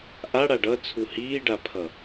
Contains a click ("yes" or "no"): no